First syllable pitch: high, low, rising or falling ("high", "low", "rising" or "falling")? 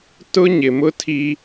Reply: high